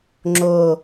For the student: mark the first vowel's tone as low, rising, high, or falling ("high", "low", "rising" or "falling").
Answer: falling